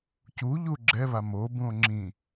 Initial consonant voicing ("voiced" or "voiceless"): voiceless